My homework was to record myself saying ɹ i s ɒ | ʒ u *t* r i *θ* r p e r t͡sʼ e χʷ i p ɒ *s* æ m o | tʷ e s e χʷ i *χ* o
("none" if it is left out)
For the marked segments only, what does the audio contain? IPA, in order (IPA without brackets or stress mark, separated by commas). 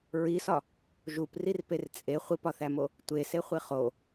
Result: p, none, θ, χ